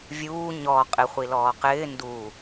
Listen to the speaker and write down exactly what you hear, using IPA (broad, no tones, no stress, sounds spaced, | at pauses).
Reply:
vʲ uː ɲ ɔ qʼ ɪ χʷ i l ɔː q ɪː n d u